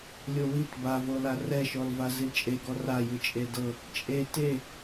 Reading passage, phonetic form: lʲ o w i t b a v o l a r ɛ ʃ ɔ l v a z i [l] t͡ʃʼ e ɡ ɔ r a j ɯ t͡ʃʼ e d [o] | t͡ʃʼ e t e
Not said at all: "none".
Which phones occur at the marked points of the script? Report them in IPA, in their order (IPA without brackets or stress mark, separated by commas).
l, ɤ